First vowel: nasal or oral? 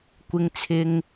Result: oral